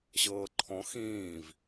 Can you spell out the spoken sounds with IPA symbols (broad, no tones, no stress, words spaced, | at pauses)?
ɕɤːǃʰɔ̃ xĩːv